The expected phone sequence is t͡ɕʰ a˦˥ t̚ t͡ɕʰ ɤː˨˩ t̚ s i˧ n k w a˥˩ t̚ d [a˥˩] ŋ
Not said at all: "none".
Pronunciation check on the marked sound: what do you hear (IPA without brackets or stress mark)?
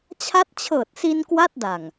a˨˩